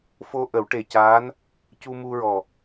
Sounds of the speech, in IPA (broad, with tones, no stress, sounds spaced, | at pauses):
f o˧ ʔ ə˨˩˦ w ʈ e˨˩ c aː˧˥ n | c u˧ m u˧ ɹ ɔ˨˩